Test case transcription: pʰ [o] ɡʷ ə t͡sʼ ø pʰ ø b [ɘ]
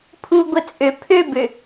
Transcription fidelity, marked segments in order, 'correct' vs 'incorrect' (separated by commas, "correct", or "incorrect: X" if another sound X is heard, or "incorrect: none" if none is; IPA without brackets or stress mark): incorrect: u, incorrect: ø